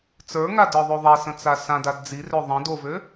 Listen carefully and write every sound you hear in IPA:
t͡s ə˞ ŋ a d ə˞ ðˤ o ðˤ ɛ s ə̃ t͡s a s ã d a d d͡z i r ø ðˤ ə̃ d o v ø

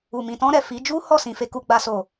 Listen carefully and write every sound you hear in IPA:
u˨ m ĩ˨ t ɔ̃˧ ɾ ɛ˨ f i˨˦ d͡ʒ u˦ h ɔ˦˨ s ĩ˧ f e˦ k u˦ ɡ͡b a˦ s o˦˨

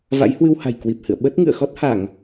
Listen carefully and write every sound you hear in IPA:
v a̰˧˥ j h w ɨ˧ w h a̤˨˩ j k w i˨˩ p̚ h ɨ̰˧˨ ə̯ ɓ ə˦˥ t̚ ŋ ɨ̰˧˨ ə̯ x ɔ˦˥ t̚ h a˧˩˨ ŋ

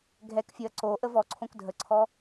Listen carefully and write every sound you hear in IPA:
ɡʱ ɛ k fʲ ɔ ɐ̯ ǀ o ʔ ə v ɔ ǀʰ õ k dʱ ə ǀʰ ɔ

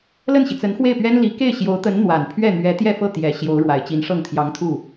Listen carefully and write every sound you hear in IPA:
l ə˥˩ n ɕ i˩ t͡s ə˧˥ n x w e˥˩ ɪ̯ p ɥ ɛ˥ n l i˧˥ k e˥˩ ɪ̯ ɕ j o˧˥ ʊ̯ t̪ ə˧˥ n n̪ w a˨˩ n pʰ ɥ ɛ˥˩ n̪ ɥ ɛ˧˥ t̪ j ɛ˥˧ f ɤ˥˩ t̪ j ɛ˨˩ ɕ j o˧˥ ʊ̯ ɻ w a˨˩ ɪ̯ t͡ɕ i˧˥ n ʂ ɤ˥˩ ŋ t̪ʰ j ɑ˧˥ ŋ t̪ʰ u˥˩

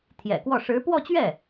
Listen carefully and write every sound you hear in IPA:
t̪ʰ j ɛ̰˨˩ k w ɔ˥˩ ʂ ɻ̩˧˥ p w ɔ˥˧ t͡ɕ ɥ ɛ˥˩

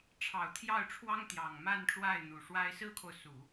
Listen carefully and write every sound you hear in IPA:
ʈ͡ʂʰ ɑ˨˩ ʊ̯ t̪ʰ j ɑ˥˩ ʊ̯ ʈ͡ʂʰ w ɑ˥ ŋ t̪ j ɑ˨˩ ŋ m a˥˧ n ʈ͡ʂ w a˥˩ ɪ̯ n̪ u˨˩ ʂ w a˥ ɪ̯ s ɹ̩˥ kʰ o˨ ʊ̯ s u˨˩˦

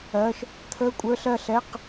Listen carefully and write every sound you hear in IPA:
ɜ˧˥˧ ʃ | t̪ʰ əː˧˥˧ kʷʼ ə˞˧˥˧ ɬ ɜ˥˩ ɬ ɛ˧˥˧ q

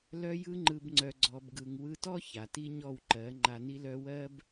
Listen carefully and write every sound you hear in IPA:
l œ˧ j ɯ˧ ŋ͡ǃ ɯ˨ b ŋ͡ǀ œ˨ ɡ͡ǀ ɔ˨ b ɡ ɯ˨ ŋ w ɯ˧ t ɔ˦ ç a˨ t i˦ ɲ ɔ˦˨ w ǃ ɜ˨˦ ŋ͡ǃ a˧ n i˦ l œ˦ w ɜ˦ b

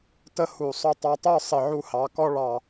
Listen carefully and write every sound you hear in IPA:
t ə˥ h u˧˩ sˤ ʊ˥˧ tˤ ɑ˧ tˤ ə˞˥˧ sˤ ɪ˧˩ ʕ u˧ h ɑ˩˧ k ɔ˥ ɭ ɑ˧˩

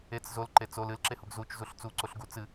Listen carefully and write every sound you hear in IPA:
e t͡s z o l ǃ e t͡s o l ɨ l ǁ e h u ɡ z u t͡ʃ z u ɬ t͡s u ǀ o ɬ ɡ u t͡s ɨ

